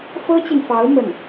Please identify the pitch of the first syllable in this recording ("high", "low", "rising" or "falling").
high